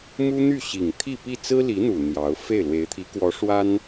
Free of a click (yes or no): yes